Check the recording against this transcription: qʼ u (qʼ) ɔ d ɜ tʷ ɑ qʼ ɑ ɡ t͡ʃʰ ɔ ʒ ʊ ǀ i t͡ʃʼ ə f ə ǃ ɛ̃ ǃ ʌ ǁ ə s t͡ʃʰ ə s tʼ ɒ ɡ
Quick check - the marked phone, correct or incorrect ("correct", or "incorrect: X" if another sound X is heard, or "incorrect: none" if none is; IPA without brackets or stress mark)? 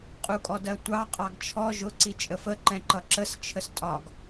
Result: incorrect: kʼ